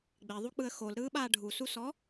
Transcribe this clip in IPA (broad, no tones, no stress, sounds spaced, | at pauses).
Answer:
ɡ͡b e ðˤ u k͡p ɯ ə̯ x o l ɾ ɯː ɓ aː ɖʱ u s u s ɔ